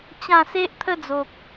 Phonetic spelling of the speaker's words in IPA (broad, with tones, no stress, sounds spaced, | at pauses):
t͡ɕ ã˥˧ s e˦ ʔ t̪ʰ ə˦ d͡z o˨ k̚